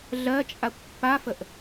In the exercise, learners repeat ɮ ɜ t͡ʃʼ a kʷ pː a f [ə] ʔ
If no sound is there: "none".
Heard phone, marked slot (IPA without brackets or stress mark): ə